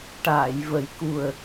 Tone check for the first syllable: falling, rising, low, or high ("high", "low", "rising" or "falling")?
low